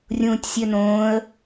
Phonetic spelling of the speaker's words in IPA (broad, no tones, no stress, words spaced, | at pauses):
rʲũːtʲsʲønõːə̯